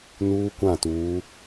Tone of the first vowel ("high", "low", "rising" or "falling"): high